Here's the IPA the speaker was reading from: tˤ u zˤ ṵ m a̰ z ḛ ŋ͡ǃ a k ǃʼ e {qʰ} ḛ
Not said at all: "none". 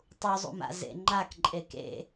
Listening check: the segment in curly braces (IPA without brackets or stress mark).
k